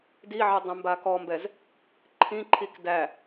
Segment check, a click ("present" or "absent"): present